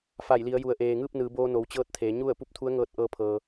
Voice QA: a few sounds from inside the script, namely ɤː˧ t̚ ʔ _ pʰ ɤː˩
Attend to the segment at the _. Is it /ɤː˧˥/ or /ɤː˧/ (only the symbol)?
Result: ɤː˧